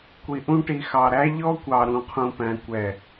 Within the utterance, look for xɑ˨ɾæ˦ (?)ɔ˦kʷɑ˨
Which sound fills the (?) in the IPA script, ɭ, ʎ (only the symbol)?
ʎ